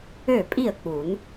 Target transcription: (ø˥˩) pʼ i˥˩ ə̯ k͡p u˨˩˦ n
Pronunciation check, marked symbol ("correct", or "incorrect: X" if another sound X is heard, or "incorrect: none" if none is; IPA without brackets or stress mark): correct